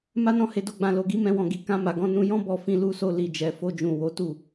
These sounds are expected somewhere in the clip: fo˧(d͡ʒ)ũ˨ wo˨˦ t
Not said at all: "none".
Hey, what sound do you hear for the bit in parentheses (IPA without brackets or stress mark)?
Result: d͡ʒ